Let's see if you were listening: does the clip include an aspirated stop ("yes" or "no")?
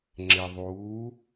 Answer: no